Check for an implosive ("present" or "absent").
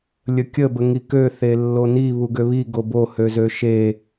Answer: absent